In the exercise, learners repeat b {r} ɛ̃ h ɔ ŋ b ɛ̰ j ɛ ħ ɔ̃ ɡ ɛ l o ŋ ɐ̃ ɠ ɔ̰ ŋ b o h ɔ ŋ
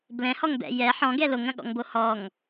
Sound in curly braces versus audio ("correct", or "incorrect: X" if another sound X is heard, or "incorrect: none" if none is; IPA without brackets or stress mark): incorrect: l